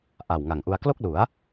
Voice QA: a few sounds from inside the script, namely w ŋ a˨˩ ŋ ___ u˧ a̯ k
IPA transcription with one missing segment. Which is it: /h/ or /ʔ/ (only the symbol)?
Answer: ʔ